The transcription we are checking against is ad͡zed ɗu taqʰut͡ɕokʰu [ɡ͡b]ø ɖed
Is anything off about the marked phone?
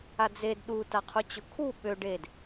yes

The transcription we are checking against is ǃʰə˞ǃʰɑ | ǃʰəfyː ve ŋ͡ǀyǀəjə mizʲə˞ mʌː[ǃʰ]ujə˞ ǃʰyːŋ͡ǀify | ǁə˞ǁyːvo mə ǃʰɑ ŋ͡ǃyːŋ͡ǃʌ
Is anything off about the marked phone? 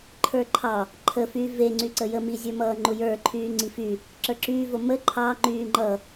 yes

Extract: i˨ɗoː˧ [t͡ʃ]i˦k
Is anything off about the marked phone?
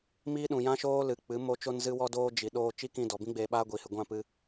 no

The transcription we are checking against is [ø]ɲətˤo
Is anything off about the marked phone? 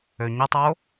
no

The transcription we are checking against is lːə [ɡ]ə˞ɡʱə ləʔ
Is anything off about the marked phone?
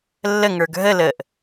yes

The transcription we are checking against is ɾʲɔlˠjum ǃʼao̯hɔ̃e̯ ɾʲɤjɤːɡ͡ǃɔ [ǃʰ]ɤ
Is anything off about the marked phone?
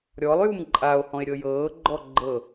yes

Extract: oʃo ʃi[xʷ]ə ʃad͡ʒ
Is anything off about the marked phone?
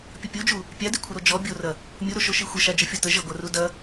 no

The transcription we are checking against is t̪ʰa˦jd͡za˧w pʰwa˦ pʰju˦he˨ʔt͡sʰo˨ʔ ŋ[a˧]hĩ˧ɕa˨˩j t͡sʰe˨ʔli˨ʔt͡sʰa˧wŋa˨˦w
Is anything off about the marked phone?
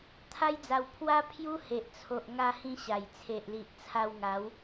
no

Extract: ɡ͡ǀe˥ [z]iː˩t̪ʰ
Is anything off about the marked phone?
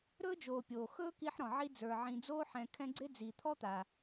yes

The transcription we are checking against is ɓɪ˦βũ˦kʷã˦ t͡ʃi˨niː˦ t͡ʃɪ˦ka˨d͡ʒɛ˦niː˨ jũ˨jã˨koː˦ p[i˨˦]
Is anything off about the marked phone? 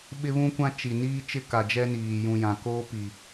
yes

